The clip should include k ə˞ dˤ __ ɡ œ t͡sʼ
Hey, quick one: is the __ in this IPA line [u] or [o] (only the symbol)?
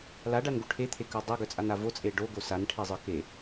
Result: o